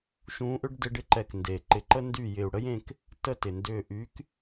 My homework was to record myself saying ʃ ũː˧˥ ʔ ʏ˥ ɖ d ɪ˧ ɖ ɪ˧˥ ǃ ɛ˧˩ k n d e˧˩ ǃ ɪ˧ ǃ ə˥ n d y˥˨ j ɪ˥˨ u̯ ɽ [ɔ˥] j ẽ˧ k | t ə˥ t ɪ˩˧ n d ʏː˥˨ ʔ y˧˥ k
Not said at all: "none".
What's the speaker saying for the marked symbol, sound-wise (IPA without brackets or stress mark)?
ə˥